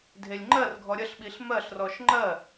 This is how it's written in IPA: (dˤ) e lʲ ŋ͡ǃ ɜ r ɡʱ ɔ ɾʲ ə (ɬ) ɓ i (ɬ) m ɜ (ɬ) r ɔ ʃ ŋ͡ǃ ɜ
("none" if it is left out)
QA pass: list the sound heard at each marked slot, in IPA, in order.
dʱ, ɬ, ɬ, ɬ

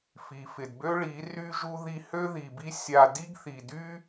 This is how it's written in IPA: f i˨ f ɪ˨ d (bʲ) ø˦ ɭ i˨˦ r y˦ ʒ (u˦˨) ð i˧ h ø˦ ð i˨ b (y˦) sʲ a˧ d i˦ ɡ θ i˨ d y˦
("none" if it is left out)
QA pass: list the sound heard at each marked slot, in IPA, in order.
b, u˦, i˦

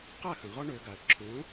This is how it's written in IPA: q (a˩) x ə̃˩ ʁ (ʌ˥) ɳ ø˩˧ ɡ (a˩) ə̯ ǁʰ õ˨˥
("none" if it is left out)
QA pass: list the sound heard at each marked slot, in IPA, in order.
a˥˩, ɔ˥, a˩

